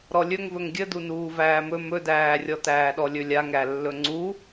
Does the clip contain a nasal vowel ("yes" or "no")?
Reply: no